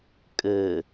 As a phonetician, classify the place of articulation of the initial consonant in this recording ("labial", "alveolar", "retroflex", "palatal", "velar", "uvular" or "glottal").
velar